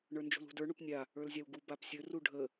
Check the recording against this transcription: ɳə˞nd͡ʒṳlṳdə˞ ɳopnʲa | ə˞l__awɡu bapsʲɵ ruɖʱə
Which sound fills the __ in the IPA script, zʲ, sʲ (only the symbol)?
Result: zʲ